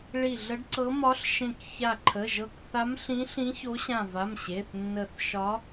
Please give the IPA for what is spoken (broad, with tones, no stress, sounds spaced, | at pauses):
ɭ i˧˩ ɮ ə˧˥ ɖ ǀ ɤ˧˥ m ɒ˧˥ ɬ ʃ ẽ˧˩ k ç a˧˩ ǃʰ ə˩˧˩ ʒ ɤ˧˩ k θ a˧˥ m ɬ ĩ˧˥ ɬ ĩ˧˥ ç o˧˥ ɕ ã˧˩ v a˩˧˩ m ɕ e˩˧˩ θ nː ə˧˩ θ ʃ ɒ˧˥